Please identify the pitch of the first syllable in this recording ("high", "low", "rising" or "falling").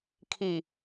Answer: low